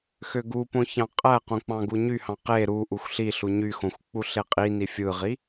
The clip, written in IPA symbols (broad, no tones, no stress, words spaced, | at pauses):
xøɡupõ çɑ̃qʼæqõ k͡pɑ̃ɡuɲyhɑ̃ qe ɾu ʔuxʷɬiɬu ɲyxõxʷ k͡puɬeqʼini fʲɯʁi